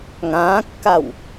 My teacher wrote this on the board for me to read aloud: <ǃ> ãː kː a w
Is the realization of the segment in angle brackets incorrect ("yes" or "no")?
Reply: yes